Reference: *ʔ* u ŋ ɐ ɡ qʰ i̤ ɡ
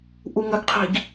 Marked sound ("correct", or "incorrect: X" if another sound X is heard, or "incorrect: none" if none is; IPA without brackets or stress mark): correct